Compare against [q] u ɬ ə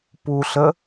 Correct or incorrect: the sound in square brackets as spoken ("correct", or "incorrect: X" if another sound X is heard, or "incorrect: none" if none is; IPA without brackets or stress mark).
incorrect: p